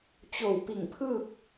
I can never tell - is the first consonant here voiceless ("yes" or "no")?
yes